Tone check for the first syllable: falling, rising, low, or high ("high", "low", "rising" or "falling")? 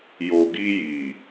low